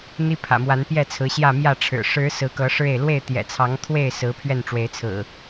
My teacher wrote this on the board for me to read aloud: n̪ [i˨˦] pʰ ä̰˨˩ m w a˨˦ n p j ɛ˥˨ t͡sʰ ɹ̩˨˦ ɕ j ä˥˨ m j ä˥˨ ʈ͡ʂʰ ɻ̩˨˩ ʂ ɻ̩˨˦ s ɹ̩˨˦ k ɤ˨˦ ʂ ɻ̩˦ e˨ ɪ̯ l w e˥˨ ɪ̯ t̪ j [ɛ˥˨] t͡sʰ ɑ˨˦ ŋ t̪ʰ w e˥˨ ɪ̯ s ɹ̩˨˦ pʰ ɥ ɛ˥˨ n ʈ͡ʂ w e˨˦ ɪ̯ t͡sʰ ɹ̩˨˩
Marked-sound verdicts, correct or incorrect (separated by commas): incorrect, incorrect